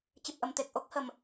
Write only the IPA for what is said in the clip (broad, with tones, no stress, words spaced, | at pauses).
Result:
t͡ɕɨ˨˩p̚ʔə˨˩m t̪e˨˩k̚ ʔo˦˥k̚hə˨˩m